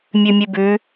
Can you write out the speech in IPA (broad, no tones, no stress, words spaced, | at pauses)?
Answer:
mʲʉmʲʉbʉ